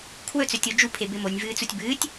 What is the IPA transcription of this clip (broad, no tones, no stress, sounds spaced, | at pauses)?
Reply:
kʰ w ɵ t͡s ɵ tʲ o d͡ʒ u pʰ e b e m o nʲ v ɨː t͡s u tʲ b ɨː tʲ